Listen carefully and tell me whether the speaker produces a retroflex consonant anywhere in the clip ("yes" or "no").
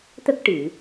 yes